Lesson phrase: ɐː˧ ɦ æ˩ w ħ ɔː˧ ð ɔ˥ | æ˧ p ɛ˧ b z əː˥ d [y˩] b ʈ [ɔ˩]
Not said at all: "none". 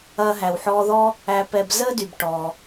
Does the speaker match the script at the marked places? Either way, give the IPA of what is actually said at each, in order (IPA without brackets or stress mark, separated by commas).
y˩, ɔ˩